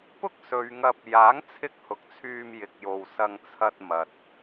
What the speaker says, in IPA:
pʊ˥k̚sɵ˨˧ɥŋɐ˧p̚ jaː˨˥ŋt͡sʰɪ˧k̚hʊ˨k̚ t͡sʰyː˧mjɪ˨k̚jo˨wsɐ˧ŋ t͡sʰɐ˧t̚mɐ˨t̚

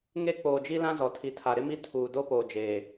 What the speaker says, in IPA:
ŋe˦ k͡poː˨d͡ʒi˦lã˦zɔ˨ tʰi˨tʰa˨ ɾɪ˦mi˦ tʰuː˨ do˦poː˨d͡ʒeː˨

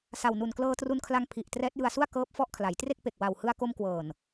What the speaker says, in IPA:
sa˨˩wnu˨˩nklɤː˧ tru˧nkʰla˧ŋ pʰi˨˩ʔ trɛː˦˥t̚jɯ˧a̯su˥˩a̯ kɤː˦˥p̚ fɔ˦˥ʔkʰla˩˦jtre˥˩k̚pe˨˩k̚ wa˨˩w hɯ˧a̯ko˧mkwɤː˨˩n

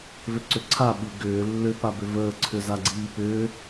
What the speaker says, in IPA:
vʏǀʏǀʰa ɓi ɡʏː lːʏ pabʏvəː ǀʰʏzaɡ͡ǀiːpʏː

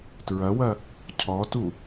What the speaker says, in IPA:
tɹɐwɐ | cʰɔtu

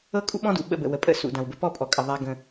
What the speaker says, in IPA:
ɤ˦kʼṵ˦ɓɔ̃˦dṵ˨ ɓə̰˦˨bə̰˨ wə˨pʼə̰˦ sṵ˨dã˨wbə˦ pɔ˦pʼɔ˨kʼə˨ ðˤa˦ɡə̃˦

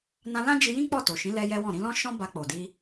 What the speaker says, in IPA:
nã˧lã˦d͡ʒi˧jĩ˦ k͡pɔ˦˨to˨ʃĩ˨˦ lɛ˦jɛ˦wɔ̃˦˨ ɾĩ˧lɔ̃˦ ʃɔ̃˦ ba˧k͡po˨di˧

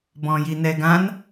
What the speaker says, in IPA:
bɔ̃jinɛɡãn

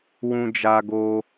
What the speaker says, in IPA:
wũ˧d͡ʒa˧ɡo˧

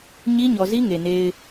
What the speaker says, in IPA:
ɲi˦ɲɔ˨zi˦ ŋe˨ne˦ɪ̯

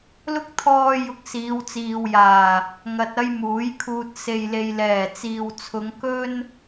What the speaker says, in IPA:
lʊ˥k̚ t̪ʰɔː˥ jʊ˧k̚siː˨˧wt͡siː˨wjaː˨˩ | ŋɐ˧t̚ ɐ˥jmuː˨˥jkʰuː˧t̚ se˨jle˨jlɛː˨˩t͡siː˨w t͡sʰʊ˨˧ŋkɵ˥n

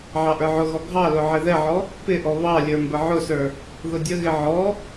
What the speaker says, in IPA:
ʕɑʔə˞ʕʊɣɔ ɡʱɑlʊ ʕɪðɛʕɔ | pɪʔɔ βɑlʲə˞ mbəʕʊsə˞ | ðʊdʲəɣɪ ʕɔ

